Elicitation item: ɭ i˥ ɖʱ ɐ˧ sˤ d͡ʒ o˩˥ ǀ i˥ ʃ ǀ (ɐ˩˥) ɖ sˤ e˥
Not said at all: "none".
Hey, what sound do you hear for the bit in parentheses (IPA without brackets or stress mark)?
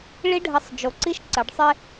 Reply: ɐ˩˥